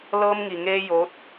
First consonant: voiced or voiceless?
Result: voiced